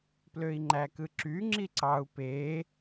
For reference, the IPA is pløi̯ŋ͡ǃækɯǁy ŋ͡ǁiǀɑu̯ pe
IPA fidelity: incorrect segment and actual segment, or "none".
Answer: none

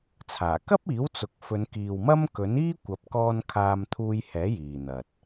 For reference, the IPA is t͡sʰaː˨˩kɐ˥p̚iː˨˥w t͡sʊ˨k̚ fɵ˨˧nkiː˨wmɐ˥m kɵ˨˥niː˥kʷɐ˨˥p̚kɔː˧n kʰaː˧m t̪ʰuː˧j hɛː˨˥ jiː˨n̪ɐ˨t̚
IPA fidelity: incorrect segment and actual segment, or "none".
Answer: none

